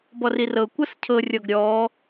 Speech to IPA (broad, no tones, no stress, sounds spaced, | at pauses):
b ɔ r i r ɤ kʷ ɤ s cʰ ɤ rʲ ɔ ɡ ɾʲ ɔ